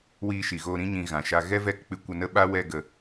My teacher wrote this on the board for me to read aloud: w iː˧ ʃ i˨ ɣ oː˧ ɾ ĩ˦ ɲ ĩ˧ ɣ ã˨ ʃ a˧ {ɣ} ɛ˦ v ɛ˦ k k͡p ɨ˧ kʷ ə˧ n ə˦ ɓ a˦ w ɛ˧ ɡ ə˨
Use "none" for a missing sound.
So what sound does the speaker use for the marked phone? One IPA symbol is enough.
ɣ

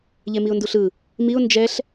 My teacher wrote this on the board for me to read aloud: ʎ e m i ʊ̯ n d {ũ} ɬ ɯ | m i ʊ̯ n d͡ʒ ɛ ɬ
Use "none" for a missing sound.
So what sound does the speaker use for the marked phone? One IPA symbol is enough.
u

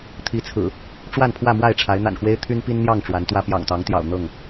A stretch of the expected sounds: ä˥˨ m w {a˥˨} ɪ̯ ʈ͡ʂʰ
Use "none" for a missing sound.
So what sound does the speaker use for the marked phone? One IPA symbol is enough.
a˥˨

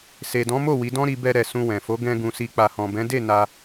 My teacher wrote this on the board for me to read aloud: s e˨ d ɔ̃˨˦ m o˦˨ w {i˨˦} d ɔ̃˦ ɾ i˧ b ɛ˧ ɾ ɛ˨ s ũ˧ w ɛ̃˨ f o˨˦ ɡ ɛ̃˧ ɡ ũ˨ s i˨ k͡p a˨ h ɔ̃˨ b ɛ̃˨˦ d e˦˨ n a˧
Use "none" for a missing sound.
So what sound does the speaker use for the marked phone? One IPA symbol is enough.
i˨˦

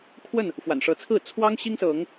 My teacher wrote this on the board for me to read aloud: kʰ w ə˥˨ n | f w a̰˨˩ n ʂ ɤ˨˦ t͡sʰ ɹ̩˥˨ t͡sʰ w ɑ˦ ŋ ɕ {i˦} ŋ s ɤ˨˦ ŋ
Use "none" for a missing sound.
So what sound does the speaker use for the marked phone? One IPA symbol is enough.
i˦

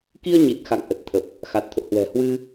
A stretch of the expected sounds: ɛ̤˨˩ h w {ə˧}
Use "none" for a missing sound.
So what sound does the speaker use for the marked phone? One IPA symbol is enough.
ɨ˧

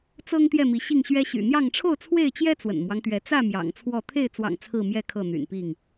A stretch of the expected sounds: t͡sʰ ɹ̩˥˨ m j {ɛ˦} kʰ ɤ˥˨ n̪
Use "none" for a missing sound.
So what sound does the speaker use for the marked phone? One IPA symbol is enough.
ɛ˦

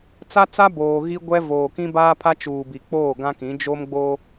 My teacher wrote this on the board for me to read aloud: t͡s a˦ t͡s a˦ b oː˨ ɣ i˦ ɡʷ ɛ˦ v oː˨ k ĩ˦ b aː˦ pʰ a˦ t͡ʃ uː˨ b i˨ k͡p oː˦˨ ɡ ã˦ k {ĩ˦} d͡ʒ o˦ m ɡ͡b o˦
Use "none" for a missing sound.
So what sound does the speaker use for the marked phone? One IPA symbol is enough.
ĩ˨˦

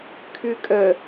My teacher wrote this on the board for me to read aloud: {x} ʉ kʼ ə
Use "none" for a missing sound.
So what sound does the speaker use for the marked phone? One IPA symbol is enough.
kʰ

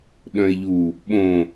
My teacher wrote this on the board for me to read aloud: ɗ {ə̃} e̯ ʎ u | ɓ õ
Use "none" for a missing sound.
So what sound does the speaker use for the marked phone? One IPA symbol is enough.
œ̃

